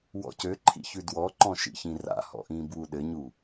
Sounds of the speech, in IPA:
wɔ̰cøǃʰḭ çʉdwɔǃɔ̃ ʃḭçĩra̰hɔ̰ ʔĩːbwuɗɘɲu

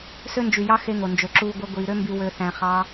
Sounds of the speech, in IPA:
sø˦nd͡ʒy˨jɑ˦ xe˦ŋo˨ nd͡ʒø˨ǁuː˧ ɡʷe˧ɡʷiː˨ɾø˦mby˧ wø˧θæ̃˧ χɑ˦

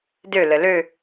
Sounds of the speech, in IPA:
dølə lø

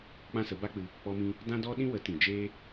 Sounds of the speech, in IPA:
k͡pã˦sə˨˦ba˦k͡pɨ˧ | k͡pɔ˧mĩ˧ | dã˦dɔ˦ɗĩ˦wə˨˦ tĩ˨d͡ʒeː˦

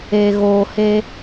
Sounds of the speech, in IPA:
e˨ ɣoː˨he˦

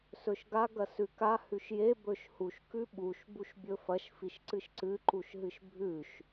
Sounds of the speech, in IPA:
sɵʃɡa ɡɐsʉka hʉʃje bɵʃhuʃ kʉɓuʃ buʃbʲɵfɐʃ fiʃǀɨʃǀɨ ǃuʃɦɨʃbʱʉʃ

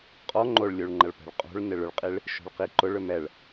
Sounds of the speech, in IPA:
qʼɔ ŋ͡ǃoɭlʲuɭŋ͡ǃɐɭ pɛ̤ɭqʼo̤ɭnɪɭ ʏɭqʼiɭ | ʃo̤ɭqiǃʊɭ ʏmɛɭ

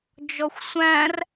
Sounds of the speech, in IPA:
d͡ʒɔxʷsʷæ̃r

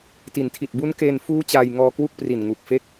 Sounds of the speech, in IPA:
ti˩˦ntʰi˨˩t̚ bu˦˥nke˧n fuː˦˥ t͡ɕaː˧jŋɔː˧kwu˥˩k̚pri˨˩n ŋu˨˩k̚fe˦˥k̚

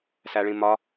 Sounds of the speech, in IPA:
sæɭĩmɒ

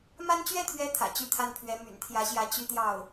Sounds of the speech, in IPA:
ma˥n t͡ɕɥɛ˥˩t̪ʰɥɛ˧˥ t̪ʰä̰˨˩t͡ɕy˥˧t̪ʰa˥˩npʰɥɛ˧˥ my̰˨˩nt̪ʰjä˧˥ɕjä˧˥ t͡ɕy˥˧t̪jɑ˥˩ʊ̯

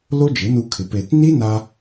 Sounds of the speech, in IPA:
lo˦d͡ʒɪ˨˦nu˧kʰɪ˨ pe˨tni˦na˧

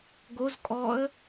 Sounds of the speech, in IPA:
ɡoz kʼɔə̯

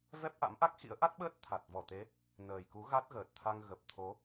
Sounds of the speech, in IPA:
vɛ˦˥p̚ʔa̰˧˥mʔa˦˥k̚xḭ˧˥ə̯ ʔa˦˥t̚ɓəː˦˥t̚ t̪ʰa˨˩t̚vɔ˧˩t̪e˨˦ | nəː˨˩jku˨˦ ɣa˦˥t̚ɣəː˨˩t̚t̪ʰa˧ŋ ɣə˨˩p̚t̪ʰo˨˦

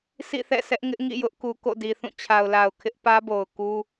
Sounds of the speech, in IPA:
sʰḭ˦˨θɛ̰˦˨sʰɛ˦ʔŋɪ˦ʔ ŋḭ˦˨jʊ˦ʔku˨ ko̰˦˨di˨θũ˦˨ t͡ɕʰa˨ʊ̯la˨ʊ̯ kʰɪ˦ʔ pä˦bo˨ʊ̯ ku˦

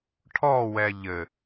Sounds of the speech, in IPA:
ʈʰɔwɛ ʎɘ

